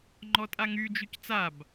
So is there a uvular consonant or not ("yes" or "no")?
no